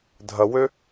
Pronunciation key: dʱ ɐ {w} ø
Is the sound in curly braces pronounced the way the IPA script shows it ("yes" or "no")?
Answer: yes